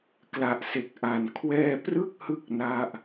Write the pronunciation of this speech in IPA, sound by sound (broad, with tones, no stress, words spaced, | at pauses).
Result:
kla˨˩ʔse˨˩k̚ʔa˨˩n kʰwɛː˧prɯ˥˩k̚hɯ˦˥k̚ na˥˩ʔ